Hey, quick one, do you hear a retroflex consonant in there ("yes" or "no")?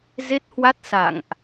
no